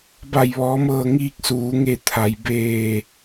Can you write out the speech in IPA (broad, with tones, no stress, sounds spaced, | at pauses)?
b a˧˩ j ʋ ɔː˩˧ m ɤː˧˩ ŋ iː˧ k̚ s uː˩˧ ŋ e˧˩ t̪ʰ a˩ j b eː˧˩